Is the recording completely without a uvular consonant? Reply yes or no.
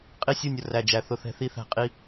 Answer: no